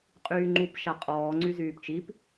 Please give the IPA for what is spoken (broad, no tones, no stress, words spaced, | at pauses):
qʼyːŋ͡ǃup ʃaqʼɔː ŋ͡ǀyzyːpt͡ʃip